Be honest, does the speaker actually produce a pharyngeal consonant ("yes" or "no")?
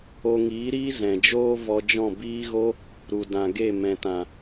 no